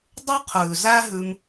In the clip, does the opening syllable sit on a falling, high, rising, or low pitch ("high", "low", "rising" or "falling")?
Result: high